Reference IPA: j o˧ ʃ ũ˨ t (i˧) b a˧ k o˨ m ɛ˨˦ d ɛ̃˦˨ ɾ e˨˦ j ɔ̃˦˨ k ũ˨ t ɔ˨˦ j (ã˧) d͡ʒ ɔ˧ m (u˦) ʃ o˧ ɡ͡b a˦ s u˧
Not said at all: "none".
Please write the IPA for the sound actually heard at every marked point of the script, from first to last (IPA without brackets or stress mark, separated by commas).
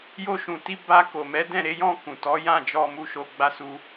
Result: i˧, ã˦˨, u˧